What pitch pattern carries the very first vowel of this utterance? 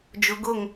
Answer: low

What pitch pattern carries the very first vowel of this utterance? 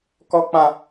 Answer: high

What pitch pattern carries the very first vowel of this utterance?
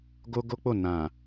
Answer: high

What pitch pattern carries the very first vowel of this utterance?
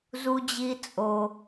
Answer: high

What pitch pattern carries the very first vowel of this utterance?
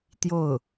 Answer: falling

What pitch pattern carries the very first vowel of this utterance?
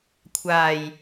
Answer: low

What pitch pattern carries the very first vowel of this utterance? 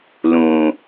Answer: low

